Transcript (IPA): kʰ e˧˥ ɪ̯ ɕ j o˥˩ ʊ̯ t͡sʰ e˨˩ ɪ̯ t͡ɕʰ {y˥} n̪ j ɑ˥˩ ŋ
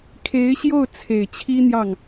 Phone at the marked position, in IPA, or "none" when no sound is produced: i˥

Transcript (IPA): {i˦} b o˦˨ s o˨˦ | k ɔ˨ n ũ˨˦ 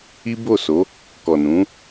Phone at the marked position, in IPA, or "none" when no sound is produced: i˦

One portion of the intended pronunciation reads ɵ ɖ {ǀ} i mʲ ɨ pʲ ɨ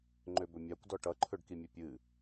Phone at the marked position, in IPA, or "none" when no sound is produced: k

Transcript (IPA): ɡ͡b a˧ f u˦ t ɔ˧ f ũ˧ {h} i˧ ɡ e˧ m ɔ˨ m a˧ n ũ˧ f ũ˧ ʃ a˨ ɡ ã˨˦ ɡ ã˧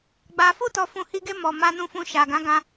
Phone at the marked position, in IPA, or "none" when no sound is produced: h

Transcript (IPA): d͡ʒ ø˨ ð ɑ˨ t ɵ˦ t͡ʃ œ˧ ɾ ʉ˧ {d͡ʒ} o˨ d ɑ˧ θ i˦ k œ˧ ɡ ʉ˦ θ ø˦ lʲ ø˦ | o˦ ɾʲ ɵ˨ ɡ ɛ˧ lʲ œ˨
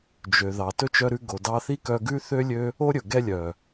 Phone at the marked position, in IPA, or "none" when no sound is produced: ɡ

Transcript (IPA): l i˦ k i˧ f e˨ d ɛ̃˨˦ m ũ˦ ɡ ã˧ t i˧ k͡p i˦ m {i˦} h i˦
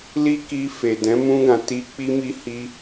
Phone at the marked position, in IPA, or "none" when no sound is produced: i˦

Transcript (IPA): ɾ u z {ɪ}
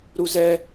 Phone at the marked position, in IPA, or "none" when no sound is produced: ɛ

